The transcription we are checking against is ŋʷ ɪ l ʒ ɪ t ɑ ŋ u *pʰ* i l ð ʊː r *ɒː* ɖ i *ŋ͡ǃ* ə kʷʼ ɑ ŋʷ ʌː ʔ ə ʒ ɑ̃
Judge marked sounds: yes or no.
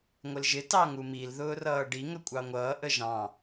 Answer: no, no, no

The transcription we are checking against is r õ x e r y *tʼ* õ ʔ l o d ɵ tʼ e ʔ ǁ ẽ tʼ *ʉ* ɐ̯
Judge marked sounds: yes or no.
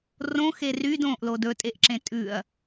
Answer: no, yes

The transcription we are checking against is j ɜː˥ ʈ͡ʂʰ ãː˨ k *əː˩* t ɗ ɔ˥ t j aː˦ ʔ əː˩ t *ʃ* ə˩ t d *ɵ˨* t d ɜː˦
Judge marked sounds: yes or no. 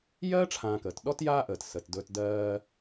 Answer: yes, no, yes

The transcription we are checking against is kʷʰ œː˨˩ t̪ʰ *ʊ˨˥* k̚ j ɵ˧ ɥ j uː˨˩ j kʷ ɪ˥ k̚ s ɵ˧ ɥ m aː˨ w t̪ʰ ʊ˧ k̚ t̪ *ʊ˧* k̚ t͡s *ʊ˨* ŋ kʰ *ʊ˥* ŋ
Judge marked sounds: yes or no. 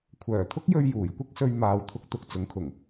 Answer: no, yes, no, no

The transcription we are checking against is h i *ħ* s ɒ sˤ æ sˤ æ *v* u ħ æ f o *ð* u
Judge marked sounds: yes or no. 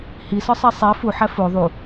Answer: no, no, no

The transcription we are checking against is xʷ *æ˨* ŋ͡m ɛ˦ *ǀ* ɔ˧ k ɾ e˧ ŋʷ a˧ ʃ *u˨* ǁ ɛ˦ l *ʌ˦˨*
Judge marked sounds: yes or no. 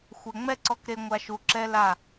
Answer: no, yes, yes, no

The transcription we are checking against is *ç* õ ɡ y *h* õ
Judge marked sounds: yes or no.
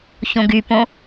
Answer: yes, no

